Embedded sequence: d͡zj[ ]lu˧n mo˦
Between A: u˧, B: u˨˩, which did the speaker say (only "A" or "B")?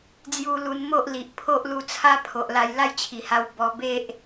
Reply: A